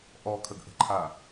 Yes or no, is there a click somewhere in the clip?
yes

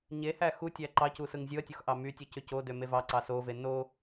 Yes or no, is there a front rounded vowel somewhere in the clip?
yes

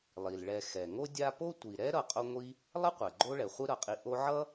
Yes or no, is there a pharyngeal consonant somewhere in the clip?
yes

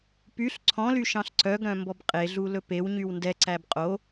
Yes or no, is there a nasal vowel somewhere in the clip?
yes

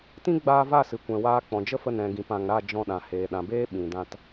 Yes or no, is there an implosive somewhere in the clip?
yes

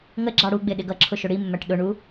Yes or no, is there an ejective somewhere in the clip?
no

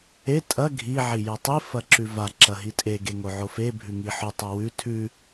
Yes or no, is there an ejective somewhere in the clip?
yes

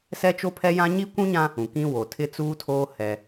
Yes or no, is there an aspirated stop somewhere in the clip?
yes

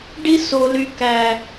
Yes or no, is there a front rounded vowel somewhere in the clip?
yes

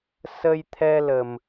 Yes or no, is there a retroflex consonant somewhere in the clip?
no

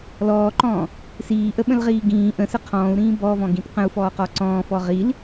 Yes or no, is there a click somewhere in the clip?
yes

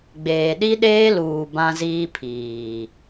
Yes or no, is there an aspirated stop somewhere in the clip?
yes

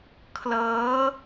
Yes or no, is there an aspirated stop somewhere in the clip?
yes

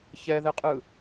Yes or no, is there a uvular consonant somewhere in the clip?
yes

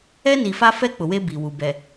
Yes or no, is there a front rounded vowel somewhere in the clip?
no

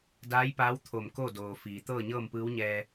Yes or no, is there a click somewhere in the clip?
no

